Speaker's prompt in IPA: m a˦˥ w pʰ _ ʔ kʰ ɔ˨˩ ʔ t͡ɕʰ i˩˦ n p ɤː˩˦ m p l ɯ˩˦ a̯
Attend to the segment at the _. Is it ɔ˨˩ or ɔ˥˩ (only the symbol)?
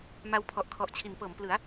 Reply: ɔ˨˩